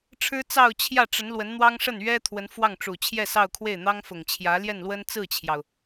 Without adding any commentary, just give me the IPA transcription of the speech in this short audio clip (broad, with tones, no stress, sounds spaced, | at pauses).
ʈ͡ʂʰ ɻ̩˥ t͡s ɑ˥˧ ʊ̯ t͡ɕʰ j ä˥˩ ʈ͡ʂ ə˧˥ n l w ə˧˥ n n̪ w ɑ˥ ŋ ʂ ə˥˩ n ɥ ɛ˥ t̪ʰ w ə˧˥ n f w ɑ˥˩ ŋ ʈ͡ʂ u˨˩ t͡ɕʰ j ɛ˥˧ s ɑ˥˧ ʊ̯ kʰ w e˥˩ ɪ̯ n̪ ɑ˥ ŋ f ʊ˨˩ ŋ t͡ɕʰ j ä˧˥ l j ɛ˥˩ n l w ə˥ n t͡s ɹ̩˥˩ t͡ɕʰ j ɑ˩ ʊ̯